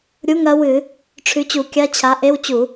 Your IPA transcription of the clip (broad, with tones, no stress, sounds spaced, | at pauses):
ɾʲ u˧˥˧ ŋ ɐ˨˥ w ɨ˧˩˧ | ʈ͡ʂʰ ʉ˨˥ t͡ɕ u˧˩˧ kʲ a˧˥˧ t͡ɕʰ a˨˥ ʔ e˧˥˧ w t͡ɕ u˧˩˧